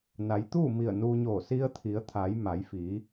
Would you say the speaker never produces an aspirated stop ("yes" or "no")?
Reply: no